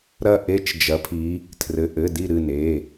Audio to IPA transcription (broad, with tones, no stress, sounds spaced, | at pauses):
ɾ ɐ˦˨ ʔ e˦˥ t͡ʃ d͡ʒ ɐ˨˦ pʰ i˨˦ | tʰ r ɘ˩˧˩ ʔ ɘ˩˧˩ d i˦˨ ɾ ɨ˦˨ n e˩˧˩